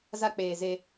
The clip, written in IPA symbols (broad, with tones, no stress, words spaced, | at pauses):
za˦k͡peː˨ze˦